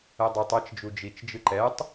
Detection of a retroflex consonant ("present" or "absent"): absent